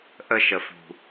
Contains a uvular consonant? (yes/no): no